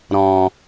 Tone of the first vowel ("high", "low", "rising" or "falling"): low